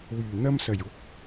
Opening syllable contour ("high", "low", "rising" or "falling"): low